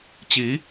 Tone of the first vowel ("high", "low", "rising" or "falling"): rising